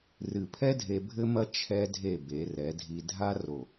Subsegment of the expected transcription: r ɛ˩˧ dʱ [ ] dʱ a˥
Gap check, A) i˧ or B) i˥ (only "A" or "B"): A